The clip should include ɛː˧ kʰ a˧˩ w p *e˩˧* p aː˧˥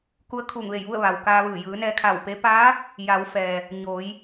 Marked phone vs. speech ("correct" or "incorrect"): incorrect